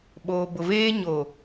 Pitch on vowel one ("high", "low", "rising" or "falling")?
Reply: low